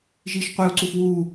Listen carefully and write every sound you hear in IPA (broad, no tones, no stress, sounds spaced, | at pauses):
ʒ iː ʃ qʷ e u̯ ǀ u f w uː